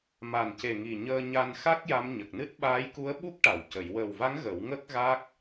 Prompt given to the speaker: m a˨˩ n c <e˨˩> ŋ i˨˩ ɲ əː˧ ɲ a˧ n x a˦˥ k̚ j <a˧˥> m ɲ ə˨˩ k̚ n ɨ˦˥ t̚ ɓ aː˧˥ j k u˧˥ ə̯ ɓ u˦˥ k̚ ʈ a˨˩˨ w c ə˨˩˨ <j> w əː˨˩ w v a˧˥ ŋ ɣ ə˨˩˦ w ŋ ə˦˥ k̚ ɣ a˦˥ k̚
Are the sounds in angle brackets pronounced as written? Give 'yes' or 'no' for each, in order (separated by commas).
yes, yes, yes